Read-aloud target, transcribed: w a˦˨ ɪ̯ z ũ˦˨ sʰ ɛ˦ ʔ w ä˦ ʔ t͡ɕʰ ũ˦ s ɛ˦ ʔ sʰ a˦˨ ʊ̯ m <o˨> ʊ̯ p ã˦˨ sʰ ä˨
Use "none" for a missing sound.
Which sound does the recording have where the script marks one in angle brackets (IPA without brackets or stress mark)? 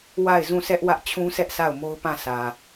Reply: o˦